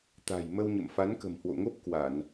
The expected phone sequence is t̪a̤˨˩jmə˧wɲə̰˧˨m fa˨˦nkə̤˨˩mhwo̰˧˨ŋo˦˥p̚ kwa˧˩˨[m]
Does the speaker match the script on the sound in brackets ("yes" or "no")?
no